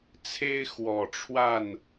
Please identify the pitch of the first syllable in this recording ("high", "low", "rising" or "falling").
high